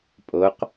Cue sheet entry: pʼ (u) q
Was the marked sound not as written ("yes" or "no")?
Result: yes